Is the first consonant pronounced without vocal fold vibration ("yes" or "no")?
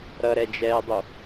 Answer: no